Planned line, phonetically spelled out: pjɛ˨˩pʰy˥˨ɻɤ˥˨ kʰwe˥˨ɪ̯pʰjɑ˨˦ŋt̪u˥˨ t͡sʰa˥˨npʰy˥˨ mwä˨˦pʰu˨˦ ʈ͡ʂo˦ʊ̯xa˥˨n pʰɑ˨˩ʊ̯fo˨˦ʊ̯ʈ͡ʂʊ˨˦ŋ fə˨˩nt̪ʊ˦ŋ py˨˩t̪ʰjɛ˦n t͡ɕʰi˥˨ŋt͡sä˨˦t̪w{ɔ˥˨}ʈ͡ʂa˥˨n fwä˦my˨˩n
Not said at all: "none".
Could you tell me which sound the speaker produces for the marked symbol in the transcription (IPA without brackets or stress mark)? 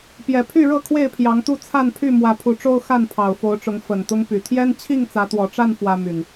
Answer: ɔ˨˩